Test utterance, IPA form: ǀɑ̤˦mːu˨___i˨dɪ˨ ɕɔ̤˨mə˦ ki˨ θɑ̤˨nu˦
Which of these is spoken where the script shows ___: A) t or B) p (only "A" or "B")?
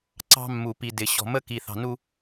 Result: B